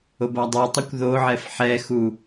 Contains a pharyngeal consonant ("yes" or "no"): yes